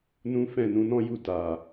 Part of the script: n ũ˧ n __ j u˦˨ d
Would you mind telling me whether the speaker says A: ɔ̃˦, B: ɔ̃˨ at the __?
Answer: A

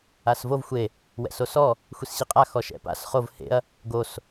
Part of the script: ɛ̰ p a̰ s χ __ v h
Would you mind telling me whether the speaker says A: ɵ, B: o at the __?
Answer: B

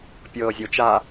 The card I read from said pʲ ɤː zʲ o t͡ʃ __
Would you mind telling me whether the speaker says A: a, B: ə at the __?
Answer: A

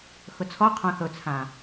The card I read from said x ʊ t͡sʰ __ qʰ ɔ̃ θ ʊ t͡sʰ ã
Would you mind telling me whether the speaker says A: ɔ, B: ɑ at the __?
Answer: A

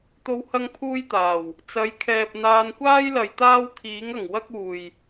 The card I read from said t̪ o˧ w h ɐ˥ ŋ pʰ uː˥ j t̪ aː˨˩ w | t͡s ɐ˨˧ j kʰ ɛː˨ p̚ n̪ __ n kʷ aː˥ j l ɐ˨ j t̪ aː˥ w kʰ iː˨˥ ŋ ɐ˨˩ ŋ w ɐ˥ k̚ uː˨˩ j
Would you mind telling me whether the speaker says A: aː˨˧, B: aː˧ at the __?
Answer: B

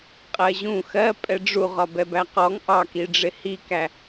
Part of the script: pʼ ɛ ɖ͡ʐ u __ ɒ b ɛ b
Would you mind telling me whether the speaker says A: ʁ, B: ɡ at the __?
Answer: A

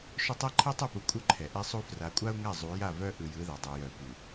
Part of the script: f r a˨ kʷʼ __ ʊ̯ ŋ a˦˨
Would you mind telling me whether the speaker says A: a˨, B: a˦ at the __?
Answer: B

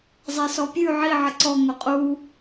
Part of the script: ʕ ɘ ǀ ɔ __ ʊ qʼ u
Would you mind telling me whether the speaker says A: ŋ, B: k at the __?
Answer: A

